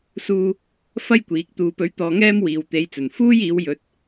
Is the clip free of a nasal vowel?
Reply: yes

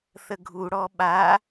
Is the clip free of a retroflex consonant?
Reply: no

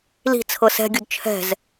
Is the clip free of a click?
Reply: yes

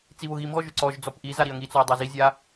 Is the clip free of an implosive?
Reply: yes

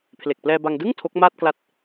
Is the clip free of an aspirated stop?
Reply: no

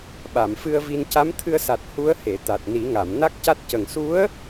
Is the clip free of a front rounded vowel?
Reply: yes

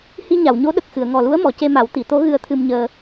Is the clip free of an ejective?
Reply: yes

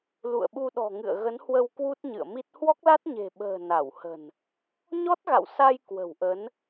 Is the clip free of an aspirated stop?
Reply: yes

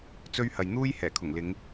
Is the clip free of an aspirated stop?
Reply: no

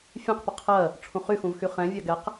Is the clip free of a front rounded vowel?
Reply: no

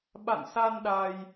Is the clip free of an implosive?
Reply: no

